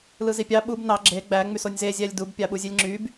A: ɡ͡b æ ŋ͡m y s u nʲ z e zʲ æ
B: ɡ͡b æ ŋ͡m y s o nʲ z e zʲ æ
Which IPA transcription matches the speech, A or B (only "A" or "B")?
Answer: B